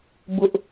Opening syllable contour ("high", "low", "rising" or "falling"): high